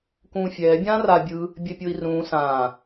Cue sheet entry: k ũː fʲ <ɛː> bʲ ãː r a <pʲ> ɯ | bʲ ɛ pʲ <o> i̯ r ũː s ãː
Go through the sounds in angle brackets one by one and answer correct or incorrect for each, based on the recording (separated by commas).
correct, incorrect, correct